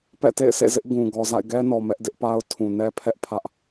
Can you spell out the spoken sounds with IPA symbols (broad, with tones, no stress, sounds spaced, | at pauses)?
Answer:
p ɛ̰˦˨ t ḛ˦˨ ɪ̯ s ḛ˦˨ z ɪ˦ ʔ ɡ ũ˨ ɡ ɔ˨ z a̰˦˨ ɪ̯ ɡ ɛ˦ n ɔ˨ m ɛ˦ ʔ d ɪ˦ ʔ p a˦ ʊ̯ tʰ ũ˨ n ɛ˦ pʰ ɛ˦ ʔ pʰ ä˦ ʔ